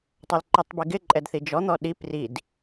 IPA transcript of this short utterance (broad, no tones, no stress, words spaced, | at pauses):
tˤolǃitˤbiɡɪ ǃʼɛdθid͡ʒɔ n̪ɔɗi prid